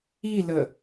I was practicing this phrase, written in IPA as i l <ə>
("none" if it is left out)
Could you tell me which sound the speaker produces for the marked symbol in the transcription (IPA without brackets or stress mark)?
ə